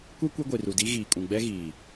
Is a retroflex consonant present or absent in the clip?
absent